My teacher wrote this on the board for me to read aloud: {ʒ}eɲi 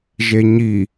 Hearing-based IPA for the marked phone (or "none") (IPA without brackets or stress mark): ʒ